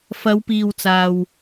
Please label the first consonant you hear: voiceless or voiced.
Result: voiceless